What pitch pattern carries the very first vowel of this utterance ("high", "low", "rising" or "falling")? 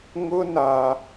high